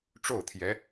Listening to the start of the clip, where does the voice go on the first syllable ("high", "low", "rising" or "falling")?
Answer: falling